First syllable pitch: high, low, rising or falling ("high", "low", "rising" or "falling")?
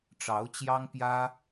rising